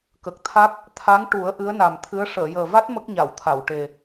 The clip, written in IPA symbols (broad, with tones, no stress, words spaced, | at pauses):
kə˨˩k̚t̪ʰa˦˥k̚ | t̪ʰa˧˥ŋʈu˨˩˦ə̯ ʔɨ˧˥ə̯na˨˩mt̪ʰɨ˧˥ə̯ ʂəː˨˩˨jəː˨˩va˦˥t̚ mə˦˥k̚ɲa˨˩˨wt̪ʰa˨˩˨wʈe˨˩